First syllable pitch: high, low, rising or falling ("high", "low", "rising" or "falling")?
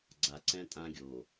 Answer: low